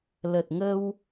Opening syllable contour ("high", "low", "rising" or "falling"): low